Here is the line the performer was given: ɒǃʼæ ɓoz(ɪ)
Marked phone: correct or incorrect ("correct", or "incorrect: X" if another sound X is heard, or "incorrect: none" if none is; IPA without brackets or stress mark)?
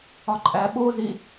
incorrect: i